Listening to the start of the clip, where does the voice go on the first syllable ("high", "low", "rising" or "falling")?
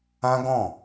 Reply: high